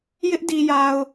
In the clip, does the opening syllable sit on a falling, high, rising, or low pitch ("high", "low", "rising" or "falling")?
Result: high